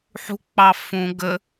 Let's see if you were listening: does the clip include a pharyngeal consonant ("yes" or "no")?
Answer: yes